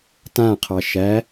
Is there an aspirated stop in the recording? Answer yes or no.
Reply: yes